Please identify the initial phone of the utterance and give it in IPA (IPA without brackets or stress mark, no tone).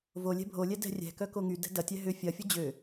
v